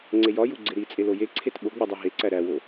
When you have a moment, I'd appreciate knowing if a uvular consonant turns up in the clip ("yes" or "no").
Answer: no